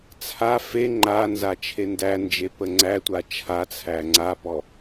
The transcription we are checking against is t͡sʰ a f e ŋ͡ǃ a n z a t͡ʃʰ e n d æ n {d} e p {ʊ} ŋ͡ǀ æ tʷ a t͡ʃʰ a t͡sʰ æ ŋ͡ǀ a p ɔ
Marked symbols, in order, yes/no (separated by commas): no, no